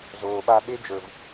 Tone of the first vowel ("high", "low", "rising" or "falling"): low